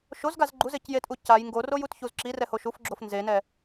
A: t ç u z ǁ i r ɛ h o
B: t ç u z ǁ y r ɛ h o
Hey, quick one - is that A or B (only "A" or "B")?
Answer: A